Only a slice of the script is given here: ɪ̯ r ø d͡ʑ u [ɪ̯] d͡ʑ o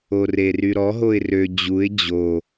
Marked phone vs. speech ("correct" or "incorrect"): correct